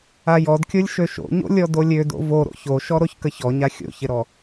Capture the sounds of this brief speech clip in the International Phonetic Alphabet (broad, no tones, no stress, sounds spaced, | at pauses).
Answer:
a j ɔ d kʲ o lʲ ʃ ø ʃ o̰ ɲ o̰ lʲ ɔ d o lʲ ø d o̰ v o ɾ o̰ ç o ʃ ɔ ɾ o ç k ə ç ɔ ɲ a xʲ o̰ ç ɪ ɾ ɔ